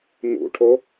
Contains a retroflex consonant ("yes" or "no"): yes